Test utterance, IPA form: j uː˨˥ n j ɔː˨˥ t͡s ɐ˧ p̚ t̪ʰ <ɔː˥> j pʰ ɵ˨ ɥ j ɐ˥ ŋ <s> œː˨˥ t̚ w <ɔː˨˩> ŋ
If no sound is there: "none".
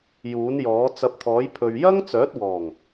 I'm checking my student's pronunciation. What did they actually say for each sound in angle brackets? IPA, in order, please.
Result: ɔː˨˥, t͡s, ɔː˨˩

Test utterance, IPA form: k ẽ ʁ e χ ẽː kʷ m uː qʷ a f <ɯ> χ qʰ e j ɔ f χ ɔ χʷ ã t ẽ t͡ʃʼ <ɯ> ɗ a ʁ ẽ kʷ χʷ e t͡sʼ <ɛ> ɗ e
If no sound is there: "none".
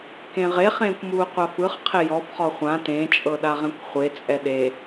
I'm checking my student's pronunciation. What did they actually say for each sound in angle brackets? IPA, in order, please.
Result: ɯ, ɤ, ɛ

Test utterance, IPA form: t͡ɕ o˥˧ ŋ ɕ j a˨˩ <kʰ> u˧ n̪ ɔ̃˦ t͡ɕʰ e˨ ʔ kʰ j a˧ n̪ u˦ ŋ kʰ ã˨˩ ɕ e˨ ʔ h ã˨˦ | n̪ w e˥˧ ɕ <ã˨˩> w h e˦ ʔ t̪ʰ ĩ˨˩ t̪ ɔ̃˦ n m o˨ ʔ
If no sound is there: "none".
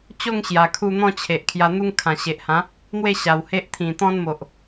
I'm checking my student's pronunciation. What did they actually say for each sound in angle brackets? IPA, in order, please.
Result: kʰ, a˨˩

